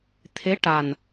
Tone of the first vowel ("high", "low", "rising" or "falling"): rising